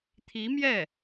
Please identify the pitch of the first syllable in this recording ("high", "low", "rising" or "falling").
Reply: rising